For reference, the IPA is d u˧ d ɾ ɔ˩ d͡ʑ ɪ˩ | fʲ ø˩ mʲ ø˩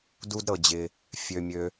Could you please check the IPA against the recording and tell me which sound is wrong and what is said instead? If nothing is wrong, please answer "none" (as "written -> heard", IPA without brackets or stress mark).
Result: ɔ˩ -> ɤ˩